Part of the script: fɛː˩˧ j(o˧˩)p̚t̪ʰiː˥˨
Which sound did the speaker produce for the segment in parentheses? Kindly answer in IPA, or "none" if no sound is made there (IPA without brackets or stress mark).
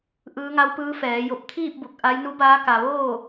o˧˩